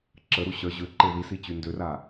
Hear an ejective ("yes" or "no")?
no